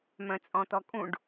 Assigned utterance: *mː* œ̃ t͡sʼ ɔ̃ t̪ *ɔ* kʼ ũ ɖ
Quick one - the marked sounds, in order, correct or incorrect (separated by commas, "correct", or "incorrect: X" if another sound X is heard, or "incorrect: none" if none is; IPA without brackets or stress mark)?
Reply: incorrect: m, correct